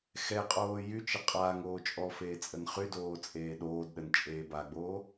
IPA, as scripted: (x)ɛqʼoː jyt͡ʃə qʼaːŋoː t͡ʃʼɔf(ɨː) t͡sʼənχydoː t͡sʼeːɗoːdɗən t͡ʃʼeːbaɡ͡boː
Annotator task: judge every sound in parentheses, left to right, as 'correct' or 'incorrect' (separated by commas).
correct, incorrect